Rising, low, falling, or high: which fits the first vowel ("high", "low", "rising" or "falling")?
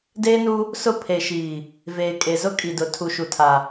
high